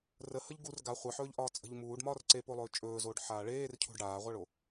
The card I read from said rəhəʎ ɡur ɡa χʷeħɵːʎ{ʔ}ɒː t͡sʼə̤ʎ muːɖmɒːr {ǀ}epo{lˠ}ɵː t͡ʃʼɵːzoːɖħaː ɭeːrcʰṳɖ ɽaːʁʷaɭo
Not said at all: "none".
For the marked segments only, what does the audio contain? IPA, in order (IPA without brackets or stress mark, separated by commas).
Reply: ʔ, ǀ, lˠ